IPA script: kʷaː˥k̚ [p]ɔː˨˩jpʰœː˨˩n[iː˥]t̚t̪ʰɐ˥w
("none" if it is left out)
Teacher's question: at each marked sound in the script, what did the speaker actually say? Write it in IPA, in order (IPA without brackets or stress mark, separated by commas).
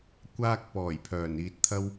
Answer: p, iː˧